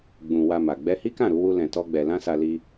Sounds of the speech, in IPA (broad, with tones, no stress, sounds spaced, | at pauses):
ɡ͡b ũ˧ w a˧ m a˨ ɡ͡b ɛ˧ h i˦ k ã˦˨ ɾ u˧ w u˦ l ɛ̃˧ t ɔ˦ ɡ͡b ɛ˧ l ã˦ s a˧ l i˧